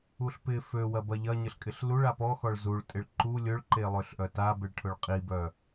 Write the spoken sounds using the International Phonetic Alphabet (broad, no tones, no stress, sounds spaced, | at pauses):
u ɬ p ɪ f ø w ɐ b ɐ ʎ ɐ ɲ ə ɬ kʼ ɪ ɬ l u ɭ a p ɔ x ɔ ɭ z u ɭ tʼ ɪ ɭ ǃ u lʲ ʊ ɭ ǃ e lˠ ø ɬ ʔ œ t a b ɪ ɭ ʈʰ ʊ ɭ qʼ i b œ